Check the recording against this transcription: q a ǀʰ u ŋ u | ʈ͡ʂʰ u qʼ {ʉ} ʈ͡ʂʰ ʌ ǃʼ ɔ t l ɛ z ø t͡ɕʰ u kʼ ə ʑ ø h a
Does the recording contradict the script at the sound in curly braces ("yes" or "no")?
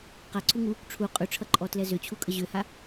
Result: no